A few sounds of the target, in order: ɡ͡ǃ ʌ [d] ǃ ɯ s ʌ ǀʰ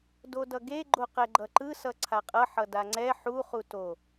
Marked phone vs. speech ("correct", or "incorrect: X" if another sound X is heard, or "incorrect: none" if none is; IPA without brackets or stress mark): incorrect: none